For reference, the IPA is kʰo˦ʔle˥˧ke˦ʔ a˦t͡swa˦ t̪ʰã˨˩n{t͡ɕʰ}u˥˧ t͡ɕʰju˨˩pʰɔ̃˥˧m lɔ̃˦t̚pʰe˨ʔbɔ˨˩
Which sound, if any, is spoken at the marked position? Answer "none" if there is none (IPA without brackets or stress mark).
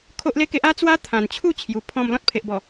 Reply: t͡ɕʰ